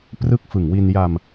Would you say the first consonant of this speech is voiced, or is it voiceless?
voiceless